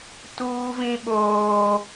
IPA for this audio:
t uː˦ v ĩ˦ ɓ oː˦

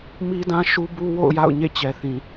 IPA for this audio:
m i˦ d ã˦ ʃ u˦ b u˦ w o̰˦˨ ʊ̯ j a̰˦˨ ʊ̯ ɲ ḛ˦˨ t͡ɕ ɛ˨ θ ĩ˨

